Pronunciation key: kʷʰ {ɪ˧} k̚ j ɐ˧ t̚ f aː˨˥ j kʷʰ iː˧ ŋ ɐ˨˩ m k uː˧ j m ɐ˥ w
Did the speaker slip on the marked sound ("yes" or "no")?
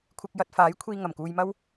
no